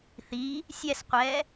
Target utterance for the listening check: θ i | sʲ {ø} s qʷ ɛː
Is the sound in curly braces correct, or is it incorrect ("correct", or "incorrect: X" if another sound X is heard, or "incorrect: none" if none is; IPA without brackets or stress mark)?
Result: incorrect: ɛ